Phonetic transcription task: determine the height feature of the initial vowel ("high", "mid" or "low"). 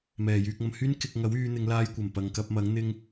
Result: mid